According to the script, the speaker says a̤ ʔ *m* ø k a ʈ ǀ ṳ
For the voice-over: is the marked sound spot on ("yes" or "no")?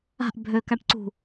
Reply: no